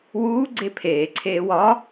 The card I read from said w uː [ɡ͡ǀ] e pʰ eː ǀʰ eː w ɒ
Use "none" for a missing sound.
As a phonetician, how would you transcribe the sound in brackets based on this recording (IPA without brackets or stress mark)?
ɡ͡ǀ